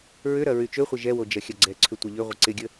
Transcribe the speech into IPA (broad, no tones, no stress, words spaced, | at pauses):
ɹʏɾɐ ɹyt͡ʃøχʷɪ ʒɛwo d͡ʒɐxʲɐɡ͡ǀɛǀʰʏ tʷɐʎʏʁʷɪ ǀɪɡʲə